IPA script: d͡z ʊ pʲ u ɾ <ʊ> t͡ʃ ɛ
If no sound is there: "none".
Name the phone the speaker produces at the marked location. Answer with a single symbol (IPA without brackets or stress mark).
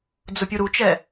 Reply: u